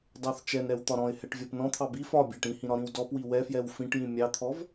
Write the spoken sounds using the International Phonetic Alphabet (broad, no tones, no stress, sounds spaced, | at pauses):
d ɑ θ t͡ʃ ɛ n ɾ ɛ w t̪ ɒ ɾ ɔ̃ ɪ̯ h ɛ ʈ vʲ ɔ p n ɔ̃ t̪ʰ ɑ b i f ɒ bʲ ɑ ʈ ĩ h ĩ ɾ ɒ ɾ ĩ w d ɔ p w i w ɛ f j ɛ w f ĩ ʈ j ĩ mʲ ɑ t̪ʰ ɔ v